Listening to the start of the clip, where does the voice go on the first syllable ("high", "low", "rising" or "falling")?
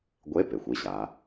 rising